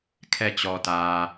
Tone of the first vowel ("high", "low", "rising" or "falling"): falling